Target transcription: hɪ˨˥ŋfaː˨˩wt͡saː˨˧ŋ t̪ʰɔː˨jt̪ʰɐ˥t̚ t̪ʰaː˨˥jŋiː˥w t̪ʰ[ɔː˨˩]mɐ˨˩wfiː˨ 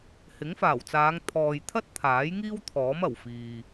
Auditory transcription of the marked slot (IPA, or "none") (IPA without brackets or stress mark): ɔː˨˥